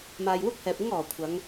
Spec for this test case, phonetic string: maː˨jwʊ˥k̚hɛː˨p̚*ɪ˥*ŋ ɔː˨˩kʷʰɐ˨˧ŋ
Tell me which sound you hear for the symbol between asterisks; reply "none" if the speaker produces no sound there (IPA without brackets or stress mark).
ɪ˥